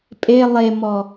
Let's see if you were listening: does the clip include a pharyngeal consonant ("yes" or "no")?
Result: no